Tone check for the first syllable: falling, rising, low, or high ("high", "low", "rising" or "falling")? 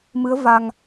rising